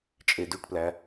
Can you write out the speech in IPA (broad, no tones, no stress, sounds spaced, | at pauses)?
t͡ʃʼ e d y ʈ p l æ